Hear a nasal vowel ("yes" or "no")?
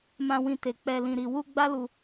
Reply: yes